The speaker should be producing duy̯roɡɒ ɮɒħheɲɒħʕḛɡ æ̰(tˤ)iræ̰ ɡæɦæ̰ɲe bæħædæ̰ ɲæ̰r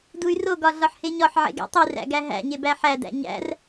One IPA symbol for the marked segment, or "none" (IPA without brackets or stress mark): tˤ